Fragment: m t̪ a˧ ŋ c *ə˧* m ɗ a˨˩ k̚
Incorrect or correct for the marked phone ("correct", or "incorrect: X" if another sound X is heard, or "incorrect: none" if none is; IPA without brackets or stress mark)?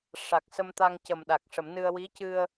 incorrect: ə˨˩